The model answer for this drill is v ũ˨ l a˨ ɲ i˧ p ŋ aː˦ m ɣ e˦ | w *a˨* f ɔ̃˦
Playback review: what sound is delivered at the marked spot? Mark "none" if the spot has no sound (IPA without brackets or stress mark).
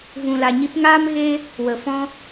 ə˨